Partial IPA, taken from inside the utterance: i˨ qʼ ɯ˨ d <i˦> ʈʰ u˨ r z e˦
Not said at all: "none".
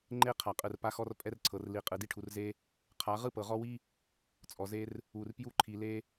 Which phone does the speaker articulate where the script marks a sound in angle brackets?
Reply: i˦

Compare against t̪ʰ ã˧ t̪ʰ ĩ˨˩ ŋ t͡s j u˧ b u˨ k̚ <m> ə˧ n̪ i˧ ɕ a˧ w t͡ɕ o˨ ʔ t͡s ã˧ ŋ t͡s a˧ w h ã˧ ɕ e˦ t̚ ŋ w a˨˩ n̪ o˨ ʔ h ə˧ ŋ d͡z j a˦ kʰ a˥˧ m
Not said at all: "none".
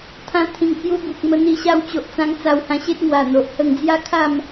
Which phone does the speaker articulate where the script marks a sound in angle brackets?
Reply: m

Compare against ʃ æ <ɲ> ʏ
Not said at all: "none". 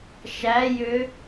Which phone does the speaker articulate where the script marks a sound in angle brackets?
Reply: j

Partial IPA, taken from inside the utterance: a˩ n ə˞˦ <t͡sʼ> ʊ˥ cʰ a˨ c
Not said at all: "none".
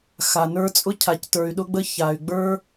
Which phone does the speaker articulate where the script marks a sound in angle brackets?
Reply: t͡sʼ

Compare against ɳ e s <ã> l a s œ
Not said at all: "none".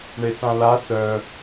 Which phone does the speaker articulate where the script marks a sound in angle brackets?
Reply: ã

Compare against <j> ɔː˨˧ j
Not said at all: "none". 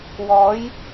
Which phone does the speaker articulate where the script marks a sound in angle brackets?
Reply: w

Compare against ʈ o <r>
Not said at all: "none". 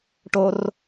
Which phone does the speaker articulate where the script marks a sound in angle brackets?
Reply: r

